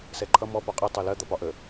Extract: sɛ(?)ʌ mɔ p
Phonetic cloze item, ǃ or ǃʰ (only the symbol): ǃʰ